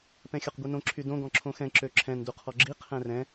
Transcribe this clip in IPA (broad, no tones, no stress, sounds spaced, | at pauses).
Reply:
p ɛ̃ xʲ ɔ q ɡʷ i n õ ǁʰ y d õ ɡ ɔ̃ ǁʰ õ x ɛ̃ ǁ ø ǁʰ ɛ̃ n d u qʰ ɔ ɡ͡ǁ i qʰ ɛ̃ r ɛ̃